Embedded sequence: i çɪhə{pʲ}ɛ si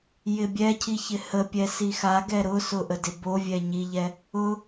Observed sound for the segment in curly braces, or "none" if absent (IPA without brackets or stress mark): pʲ